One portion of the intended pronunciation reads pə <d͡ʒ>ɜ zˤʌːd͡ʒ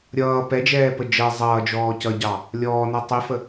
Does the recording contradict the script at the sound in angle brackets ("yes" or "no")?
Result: no